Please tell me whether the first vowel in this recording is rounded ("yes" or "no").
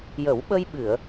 no